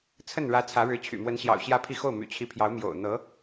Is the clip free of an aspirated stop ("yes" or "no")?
no